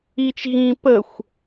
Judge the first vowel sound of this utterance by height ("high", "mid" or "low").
high